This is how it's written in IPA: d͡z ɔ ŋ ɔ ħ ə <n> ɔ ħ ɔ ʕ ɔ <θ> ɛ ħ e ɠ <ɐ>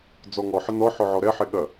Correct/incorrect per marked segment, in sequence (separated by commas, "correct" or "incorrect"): correct, incorrect, correct